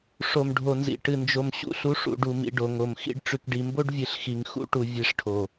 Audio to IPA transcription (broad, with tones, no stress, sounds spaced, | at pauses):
ʂ o˨ m ɖʱ o˨ n z ḭ˨ ʈ ɨ˨ n d͡ʒ o˨ m ɕ ṵ˦ ɬ u˨˦ ʂ ṵ˨ ɖ u˨ m ḭ˨ ɖ o˨ ŋ o˨ m x ḭ˦ ɖ ʈ͡ʂ ʉ˨ k ɖ i˨ m b o˦ ɖ vʲ ɨ˨ ɬ x i˨ ŋ x ṵ˦ ʈ u˨ vʲ e˦˨ ʂ ʈʰ o˨